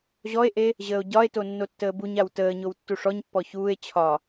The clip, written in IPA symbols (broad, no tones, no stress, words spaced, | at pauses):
ʑɔe̯ʔe | ʑəːo̯ɟɒe̯to nːotːəːbuɲaw təːɲow tːuʂɔɲpːɔ çuːe̯ t͡ɕʰɒ